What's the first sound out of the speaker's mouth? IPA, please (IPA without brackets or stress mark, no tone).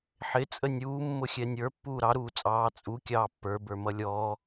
ħ